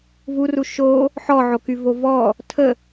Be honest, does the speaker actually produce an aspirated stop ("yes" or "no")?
yes